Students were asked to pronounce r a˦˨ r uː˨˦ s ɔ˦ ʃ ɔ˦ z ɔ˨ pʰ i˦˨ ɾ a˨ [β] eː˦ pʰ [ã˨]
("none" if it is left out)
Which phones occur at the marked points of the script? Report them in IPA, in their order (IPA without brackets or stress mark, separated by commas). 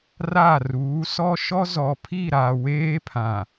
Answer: w, ã˨